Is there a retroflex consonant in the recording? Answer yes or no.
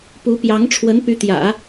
yes